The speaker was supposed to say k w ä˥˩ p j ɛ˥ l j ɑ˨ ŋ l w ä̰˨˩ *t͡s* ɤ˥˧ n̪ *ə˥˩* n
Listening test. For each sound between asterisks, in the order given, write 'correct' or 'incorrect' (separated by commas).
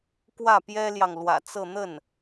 correct, correct